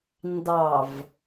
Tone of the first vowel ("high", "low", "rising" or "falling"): low